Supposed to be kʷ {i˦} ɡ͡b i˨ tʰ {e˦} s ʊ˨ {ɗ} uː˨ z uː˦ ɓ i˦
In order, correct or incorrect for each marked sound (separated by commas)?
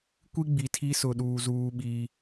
correct, incorrect, correct